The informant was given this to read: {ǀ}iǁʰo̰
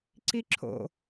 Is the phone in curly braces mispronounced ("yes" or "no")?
no